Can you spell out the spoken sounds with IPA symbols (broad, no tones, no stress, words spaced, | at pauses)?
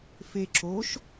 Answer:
fe ǁoʃ